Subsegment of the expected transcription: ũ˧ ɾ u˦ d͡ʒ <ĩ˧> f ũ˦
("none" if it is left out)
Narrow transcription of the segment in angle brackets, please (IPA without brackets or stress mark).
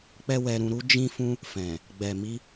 ĩ˦